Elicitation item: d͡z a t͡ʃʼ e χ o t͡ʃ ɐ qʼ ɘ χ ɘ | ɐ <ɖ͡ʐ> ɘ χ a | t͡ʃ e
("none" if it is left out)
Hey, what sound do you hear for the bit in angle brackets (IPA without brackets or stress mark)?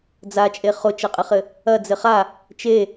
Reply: d͡z